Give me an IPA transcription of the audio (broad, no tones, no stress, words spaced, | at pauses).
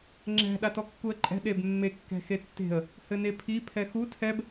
ŋ͡ǁɛ̤ ɗatɔkːuə̯ǃʼɛ̤ ɗebmːe kːɛ̤xetːe̤ə̯ | hɘnepʰi pʰɛxu tʰɛb